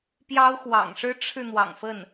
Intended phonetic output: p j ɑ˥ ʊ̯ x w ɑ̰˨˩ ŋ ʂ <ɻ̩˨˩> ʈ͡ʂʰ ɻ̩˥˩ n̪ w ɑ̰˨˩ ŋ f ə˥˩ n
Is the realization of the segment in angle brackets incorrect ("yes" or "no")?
yes